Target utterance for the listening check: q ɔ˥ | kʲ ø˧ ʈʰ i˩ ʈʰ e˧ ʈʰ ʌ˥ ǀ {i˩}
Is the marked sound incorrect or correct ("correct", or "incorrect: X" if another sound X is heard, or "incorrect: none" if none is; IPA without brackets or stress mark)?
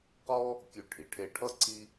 incorrect: i˥